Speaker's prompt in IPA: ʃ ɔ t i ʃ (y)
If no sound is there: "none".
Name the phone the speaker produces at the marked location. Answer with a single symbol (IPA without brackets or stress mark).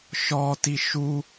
u